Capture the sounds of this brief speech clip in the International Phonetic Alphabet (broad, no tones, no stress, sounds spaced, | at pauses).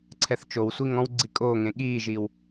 ǀʰ ɛ θ t͡ʃ o w sʷ i ŋ ɔ̃ w ɡ͡ǀ i kʼ oː ŋ ẽ ɠ iː ʒ iː w